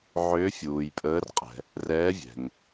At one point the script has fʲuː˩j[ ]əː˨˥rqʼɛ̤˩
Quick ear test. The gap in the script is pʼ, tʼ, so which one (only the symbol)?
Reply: pʼ